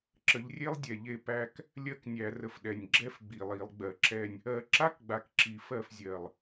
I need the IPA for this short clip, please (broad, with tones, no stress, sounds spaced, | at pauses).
ǁ ə˨˦ ʎ rʲ e˥ lˠ dʲ ɛ˨˩ ʎ e˥˩ p æ˥˧ k | lʲ ɜ˥˧ k nʲ æ˧˩˧ r ə˨˩ f ɗ ɛ˨˩ nʲ ɡ͡ǁ ɛ˥ f ɡ͡b i˨˩ lˠ i˧˩˧ lˠ ɡ͡b ɜ˧˩˧ ǁ ɛ˥˧ nʲ | ɜ˧˩˧ ǁ a˥ k ɡ͡b a˨˦ k ǁ i˧˩˧ f ɜ˥˩ f zʲ ɜ˨˩ lˠ